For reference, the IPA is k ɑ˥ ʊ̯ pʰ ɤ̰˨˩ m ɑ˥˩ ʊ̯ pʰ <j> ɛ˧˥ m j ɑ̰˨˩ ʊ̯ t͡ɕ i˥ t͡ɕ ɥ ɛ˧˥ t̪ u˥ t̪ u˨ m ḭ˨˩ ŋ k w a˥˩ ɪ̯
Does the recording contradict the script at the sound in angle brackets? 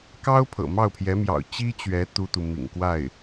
no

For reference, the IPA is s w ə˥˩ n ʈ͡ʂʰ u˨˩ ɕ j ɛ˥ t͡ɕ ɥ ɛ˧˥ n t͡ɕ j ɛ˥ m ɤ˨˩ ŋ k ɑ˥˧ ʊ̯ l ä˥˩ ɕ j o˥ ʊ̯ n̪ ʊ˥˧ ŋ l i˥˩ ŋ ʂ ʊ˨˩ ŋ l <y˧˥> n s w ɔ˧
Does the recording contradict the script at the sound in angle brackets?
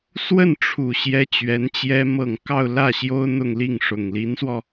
yes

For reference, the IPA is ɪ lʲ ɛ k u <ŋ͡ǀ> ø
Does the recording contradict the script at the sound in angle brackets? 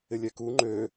yes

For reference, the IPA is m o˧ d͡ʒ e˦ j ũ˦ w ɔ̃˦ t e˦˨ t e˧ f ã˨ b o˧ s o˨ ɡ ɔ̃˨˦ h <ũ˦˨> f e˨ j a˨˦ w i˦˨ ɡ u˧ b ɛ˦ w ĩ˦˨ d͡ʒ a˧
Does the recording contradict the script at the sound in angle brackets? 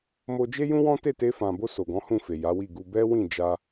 no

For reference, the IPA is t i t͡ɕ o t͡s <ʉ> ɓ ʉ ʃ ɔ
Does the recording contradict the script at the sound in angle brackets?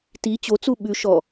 yes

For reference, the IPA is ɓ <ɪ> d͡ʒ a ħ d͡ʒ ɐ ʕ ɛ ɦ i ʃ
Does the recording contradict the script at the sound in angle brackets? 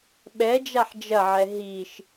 yes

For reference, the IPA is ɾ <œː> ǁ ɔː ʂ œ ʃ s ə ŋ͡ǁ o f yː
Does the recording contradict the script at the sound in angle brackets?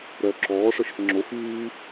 no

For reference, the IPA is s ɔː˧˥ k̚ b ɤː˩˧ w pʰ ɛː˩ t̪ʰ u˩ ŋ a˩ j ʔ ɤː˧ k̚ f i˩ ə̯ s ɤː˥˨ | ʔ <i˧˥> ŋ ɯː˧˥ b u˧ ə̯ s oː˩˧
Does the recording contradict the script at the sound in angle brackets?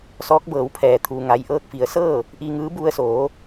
yes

